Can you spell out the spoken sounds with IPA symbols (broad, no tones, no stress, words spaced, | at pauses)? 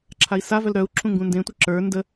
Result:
ǁʰai̯savœl ɾœu̯ǁʰũ ŋɡũndẽtʷɘ ǁə˞ ndə